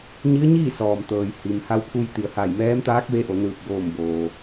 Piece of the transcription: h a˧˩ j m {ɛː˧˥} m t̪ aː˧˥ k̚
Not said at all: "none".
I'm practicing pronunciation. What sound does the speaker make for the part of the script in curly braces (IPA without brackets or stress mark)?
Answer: ɛː˧˥